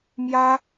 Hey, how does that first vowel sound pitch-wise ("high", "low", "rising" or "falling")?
high